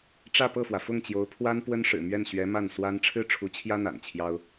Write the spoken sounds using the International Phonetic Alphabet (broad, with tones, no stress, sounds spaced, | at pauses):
ʈ͡ʂ ä˥˧ p ɤ˥˩ f w ä˩ f ʊ˥˩ ŋ t͡ɕ j o˧˥ ʊ̯ pʰ w a˥ n p w ə˥ n ʂ ɻ̩˨˩ m ɥ ɛ˥˩ n ɕ ɥ ɛ˧˥ m a˥˩ n s w a˥ n ʈ͡ʂʰ ɻ̩˥ ʈ͡ʂʰ u˧˥ t͡ɕʰ j ä˥ n̪ a̰˨˩ n t͡ɕʰ j ɑ˥ ʊ̯